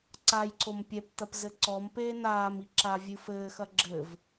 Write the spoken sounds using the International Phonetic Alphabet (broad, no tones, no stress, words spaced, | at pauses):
ǀajǀom pʲɛptɐp zɘǀɔmpeː naːmi ǁavʲɨfɘːxɐ ɡ͡ǁɘv